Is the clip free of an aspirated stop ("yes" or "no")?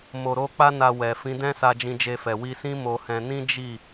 yes